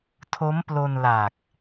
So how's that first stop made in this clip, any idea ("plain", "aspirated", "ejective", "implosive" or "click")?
aspirated